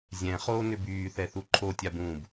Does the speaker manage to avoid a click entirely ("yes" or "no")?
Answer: no